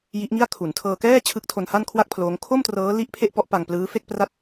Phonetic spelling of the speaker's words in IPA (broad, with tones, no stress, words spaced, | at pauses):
ji˦˥ʔŋi˥˩a̯ kʰu˩˦ntʰɤː˧kɛː˥˩ t͡ɕʰɯ˦˥k̚tʰo˧nha˥˩nkʰwa˥˩k̚ pʰloː˦˥ŋ kʰo˥˩mtrɤː˦˥li˦˥ʔ pʰe˥˩ʔpɔ˦˥ʔ pa˧ŋplɯː˦˥fe˥˩k̚ pra˥˩t̚